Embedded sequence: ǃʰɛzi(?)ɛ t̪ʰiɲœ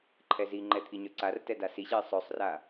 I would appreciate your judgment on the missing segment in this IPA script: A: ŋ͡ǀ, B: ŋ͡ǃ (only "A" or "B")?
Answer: B